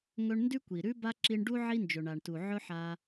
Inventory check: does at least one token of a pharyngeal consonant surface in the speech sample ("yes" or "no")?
yes